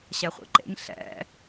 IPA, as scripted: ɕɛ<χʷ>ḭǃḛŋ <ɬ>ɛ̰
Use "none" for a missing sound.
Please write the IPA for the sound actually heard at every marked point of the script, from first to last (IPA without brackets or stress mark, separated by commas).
χʷ, ɬ